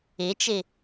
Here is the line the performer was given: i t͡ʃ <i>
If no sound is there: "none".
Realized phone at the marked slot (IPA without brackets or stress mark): i